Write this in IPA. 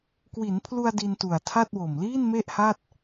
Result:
k w i˩˦ n pʰ l u˧ a̯ d i˧ n t u˨˩ a̯ tʰ a˥˩ t̚ w o˨˩ m l iː˥˩ n m e˥˩ ʔ h a˥˩ t̚

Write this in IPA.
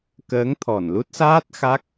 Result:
k əː˨˦ ŋ t̪ʰ ɔ˧˩ n l u˦˥ t̚ s aː˦˥ t̚ x a˦˥ k̚

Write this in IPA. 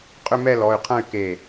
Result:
qʼ ʏ˥˧ m ɛ˥˧ l ɔ˩˧˩ y̯ qʰ ɐ̃˥˧ y̯ k e˧˩

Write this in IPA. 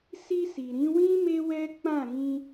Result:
s i˧ s i˨ ɾ ĩ˨˦ w ĩ˦ m e˦ w ɛ˦ k͡p ã˦˨ ɾ ĩ˧

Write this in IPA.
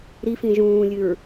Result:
ɾ i f ĩ ʒ ũː lʲ ɨ ɹ

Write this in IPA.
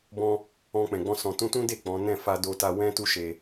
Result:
b ɔ̃˦ | ɔ̃˧ k͡p ɛ̃˨ ɡ͡b ɔ̃˧ s ɔ̃˨ t ũ˧ t ũ˦ d e˦˨ k͡p ɔ̃˨˦ n ɛ̃˦˨ f a˧ d o˧ t a˧ w ɛ̃˦ t u˦ ʃ e˧

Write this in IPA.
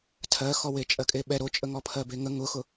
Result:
tʰ ɜ x ɔ w e t͡ʃʼ ɜ kʼ e ɓ ɛ ɾ o t͡ʃʼ ə ŋ ɔ pʰ ɜ b e ŋ ə ŋ ʊ x ʊ

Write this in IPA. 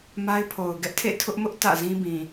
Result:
m a˦ ɪ̯ pʰ o˨ ʊ̯ ɡ ɛ˦ ʔ tʰ ḛ˦˨ tʰ ʊ˦ ʔ m ʊ˦ ʔ t ä̰˦˨ z ĩ˦ b ĩ˨

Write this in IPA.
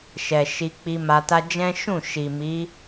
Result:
ʃ ɛ˨ ʃ i˧ k͡p i˧ m a˧ t a˦ d͡ʒ ɛ̃˦ ʃ ũ˦˨ ʃ i˨ m i˨˦

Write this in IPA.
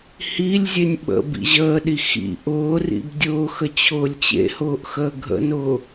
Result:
h i lʲ zʲ e nʲ ɓ ə̰ b ḭ ʑ əː ɗ i x ḭ ʔ ʊː r ḭ b dʲ ʊː x ə t͡ɕʰ ʊː lʲ t͡ɕ ḛ h ʊː ʔ x əː ɡʱ ə̰ n ʊː

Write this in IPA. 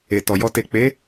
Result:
e˨ t ɔ˨ j ɔ˧ t e˨ k͡p e˨˦

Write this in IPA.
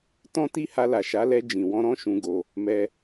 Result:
t ɔ̃˧ t i˧ h a˧ l a˨ ʃ a˨˦ l ɛ˧ d͡ʒ ĩ˨ w ɔ̃˧ ɾ ɔ̃˦ ʃ ũ˧ ɡ o˧ | m ɛ˧

